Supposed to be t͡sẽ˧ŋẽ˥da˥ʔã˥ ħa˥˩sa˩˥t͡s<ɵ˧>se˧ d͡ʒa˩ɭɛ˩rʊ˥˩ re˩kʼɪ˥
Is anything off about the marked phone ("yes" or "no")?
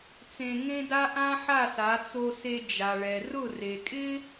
yes